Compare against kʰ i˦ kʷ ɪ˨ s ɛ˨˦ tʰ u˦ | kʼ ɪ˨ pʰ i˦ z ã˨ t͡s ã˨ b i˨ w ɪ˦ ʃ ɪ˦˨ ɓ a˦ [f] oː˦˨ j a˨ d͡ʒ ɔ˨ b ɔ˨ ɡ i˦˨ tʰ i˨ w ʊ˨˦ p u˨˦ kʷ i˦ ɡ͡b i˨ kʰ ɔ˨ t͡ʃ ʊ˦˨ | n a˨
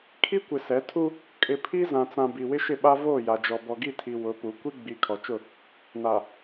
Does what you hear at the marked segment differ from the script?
yes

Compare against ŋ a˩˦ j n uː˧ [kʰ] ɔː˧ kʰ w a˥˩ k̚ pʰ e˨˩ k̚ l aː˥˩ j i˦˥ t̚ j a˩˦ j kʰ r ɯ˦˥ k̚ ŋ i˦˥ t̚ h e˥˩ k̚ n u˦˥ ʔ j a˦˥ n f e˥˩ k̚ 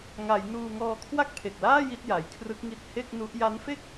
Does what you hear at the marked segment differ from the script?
yes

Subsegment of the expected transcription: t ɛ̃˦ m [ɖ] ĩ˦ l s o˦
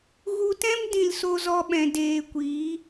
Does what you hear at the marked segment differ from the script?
yes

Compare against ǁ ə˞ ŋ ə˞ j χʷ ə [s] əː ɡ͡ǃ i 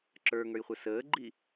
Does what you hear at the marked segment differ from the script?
no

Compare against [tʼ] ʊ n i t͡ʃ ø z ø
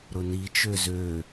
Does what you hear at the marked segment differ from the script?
yes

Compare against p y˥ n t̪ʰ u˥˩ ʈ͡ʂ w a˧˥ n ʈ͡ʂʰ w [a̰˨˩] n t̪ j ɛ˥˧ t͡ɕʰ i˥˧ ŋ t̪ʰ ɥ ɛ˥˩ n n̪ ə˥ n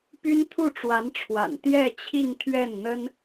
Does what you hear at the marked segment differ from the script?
no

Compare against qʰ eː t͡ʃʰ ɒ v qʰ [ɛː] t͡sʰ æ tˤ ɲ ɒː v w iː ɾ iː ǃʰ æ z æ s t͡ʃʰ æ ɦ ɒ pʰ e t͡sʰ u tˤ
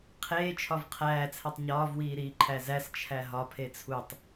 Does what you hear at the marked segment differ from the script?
yes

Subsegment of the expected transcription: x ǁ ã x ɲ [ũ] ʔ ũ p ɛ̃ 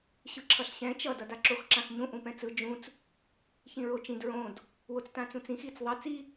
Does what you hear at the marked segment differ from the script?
no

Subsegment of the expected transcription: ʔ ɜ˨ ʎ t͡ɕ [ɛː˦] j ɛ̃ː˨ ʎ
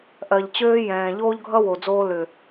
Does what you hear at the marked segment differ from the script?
yes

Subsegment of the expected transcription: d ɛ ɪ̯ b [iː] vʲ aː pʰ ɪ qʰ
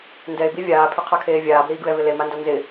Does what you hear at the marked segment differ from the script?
yes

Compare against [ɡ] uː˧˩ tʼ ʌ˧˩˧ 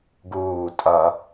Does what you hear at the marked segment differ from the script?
no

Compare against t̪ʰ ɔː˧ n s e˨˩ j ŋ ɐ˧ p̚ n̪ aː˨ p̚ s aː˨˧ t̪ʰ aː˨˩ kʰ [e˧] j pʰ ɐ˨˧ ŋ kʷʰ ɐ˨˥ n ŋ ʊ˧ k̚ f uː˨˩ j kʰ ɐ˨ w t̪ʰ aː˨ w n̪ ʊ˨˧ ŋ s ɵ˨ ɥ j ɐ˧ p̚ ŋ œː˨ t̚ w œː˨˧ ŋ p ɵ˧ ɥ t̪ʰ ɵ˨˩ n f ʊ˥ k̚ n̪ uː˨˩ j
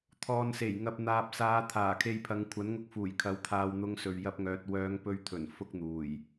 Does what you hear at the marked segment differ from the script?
no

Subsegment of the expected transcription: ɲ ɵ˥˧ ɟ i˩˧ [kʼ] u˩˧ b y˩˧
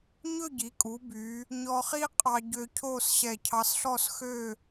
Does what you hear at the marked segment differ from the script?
no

